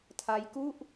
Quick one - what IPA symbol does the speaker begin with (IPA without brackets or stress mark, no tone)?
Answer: tʰ